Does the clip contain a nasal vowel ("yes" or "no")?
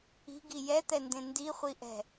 yes